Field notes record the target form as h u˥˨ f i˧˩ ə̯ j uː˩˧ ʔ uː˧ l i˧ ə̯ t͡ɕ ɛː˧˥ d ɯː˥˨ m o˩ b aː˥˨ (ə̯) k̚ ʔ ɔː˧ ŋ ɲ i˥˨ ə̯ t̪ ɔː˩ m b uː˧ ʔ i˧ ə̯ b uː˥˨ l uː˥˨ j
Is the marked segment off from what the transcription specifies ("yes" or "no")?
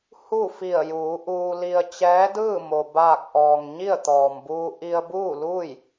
yes